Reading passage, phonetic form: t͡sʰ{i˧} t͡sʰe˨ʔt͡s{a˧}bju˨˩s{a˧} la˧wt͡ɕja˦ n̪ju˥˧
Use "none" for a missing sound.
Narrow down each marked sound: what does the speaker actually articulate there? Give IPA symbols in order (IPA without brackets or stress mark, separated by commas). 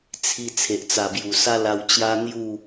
i˧, a˨˩, a˦